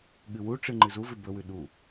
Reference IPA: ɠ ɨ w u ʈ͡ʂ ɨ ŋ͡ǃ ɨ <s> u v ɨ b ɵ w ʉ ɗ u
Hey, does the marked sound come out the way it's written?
no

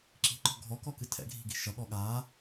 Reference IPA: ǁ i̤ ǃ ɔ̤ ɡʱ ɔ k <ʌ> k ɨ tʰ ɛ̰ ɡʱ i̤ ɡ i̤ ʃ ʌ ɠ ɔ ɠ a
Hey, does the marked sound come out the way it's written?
no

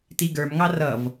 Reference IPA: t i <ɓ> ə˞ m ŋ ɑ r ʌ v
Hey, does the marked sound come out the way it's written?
no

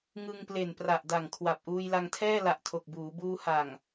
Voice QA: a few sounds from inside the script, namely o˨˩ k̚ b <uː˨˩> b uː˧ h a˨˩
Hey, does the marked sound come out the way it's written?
no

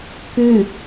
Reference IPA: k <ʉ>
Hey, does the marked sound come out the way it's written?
yes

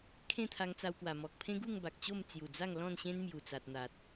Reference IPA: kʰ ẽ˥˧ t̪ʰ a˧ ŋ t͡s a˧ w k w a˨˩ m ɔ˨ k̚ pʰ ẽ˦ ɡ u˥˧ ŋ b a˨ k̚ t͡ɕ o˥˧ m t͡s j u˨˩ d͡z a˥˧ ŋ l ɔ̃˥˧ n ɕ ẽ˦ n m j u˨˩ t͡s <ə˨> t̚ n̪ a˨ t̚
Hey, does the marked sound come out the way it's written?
no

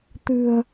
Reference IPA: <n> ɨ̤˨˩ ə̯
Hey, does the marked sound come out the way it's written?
no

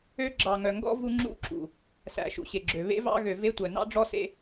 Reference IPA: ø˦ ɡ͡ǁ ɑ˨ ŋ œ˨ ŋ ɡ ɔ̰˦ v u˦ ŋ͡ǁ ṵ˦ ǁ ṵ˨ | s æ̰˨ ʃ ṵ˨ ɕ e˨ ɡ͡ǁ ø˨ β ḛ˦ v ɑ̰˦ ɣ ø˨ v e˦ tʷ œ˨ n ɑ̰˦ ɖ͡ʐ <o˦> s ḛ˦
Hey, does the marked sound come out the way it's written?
no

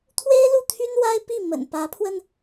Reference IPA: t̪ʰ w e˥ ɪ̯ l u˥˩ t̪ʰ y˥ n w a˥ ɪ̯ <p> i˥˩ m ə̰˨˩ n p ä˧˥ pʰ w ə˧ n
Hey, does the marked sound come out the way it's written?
yes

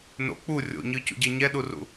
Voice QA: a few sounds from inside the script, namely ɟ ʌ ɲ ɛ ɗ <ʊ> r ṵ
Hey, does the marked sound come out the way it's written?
no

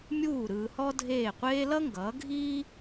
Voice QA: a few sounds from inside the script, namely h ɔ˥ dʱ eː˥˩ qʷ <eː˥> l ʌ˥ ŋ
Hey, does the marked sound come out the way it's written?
yes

